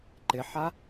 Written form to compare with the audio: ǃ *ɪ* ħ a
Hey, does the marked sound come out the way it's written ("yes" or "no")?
yes